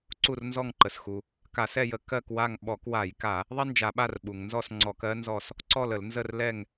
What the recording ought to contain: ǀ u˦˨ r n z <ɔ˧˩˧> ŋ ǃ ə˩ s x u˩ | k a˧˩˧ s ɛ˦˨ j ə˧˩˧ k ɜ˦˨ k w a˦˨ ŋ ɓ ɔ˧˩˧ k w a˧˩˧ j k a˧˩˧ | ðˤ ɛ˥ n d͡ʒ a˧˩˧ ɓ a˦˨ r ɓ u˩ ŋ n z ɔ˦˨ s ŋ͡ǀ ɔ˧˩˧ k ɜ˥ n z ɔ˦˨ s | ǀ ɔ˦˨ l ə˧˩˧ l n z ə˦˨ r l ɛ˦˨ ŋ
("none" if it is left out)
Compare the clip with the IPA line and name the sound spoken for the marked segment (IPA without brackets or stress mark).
ɔ˦˨